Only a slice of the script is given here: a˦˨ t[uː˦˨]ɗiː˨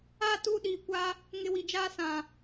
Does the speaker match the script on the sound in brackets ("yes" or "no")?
yes